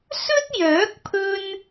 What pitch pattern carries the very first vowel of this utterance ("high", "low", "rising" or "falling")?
high